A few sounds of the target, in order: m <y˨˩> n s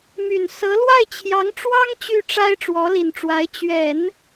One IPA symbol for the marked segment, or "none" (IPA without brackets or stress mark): y˨˩